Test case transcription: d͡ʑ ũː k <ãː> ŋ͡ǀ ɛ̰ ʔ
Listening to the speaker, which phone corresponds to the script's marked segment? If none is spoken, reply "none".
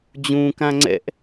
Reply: ã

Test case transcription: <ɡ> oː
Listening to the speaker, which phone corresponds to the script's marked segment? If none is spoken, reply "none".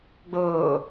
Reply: ɡ͡b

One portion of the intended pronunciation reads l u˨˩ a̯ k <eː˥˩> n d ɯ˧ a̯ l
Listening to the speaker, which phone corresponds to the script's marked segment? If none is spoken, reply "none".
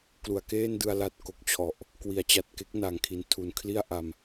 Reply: eː˥˩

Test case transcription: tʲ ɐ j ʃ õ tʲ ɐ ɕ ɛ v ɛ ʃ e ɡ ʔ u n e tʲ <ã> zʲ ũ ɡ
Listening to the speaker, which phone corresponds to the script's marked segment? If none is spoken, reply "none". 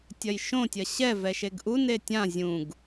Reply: ã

